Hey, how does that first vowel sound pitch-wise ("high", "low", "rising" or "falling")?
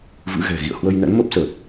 rising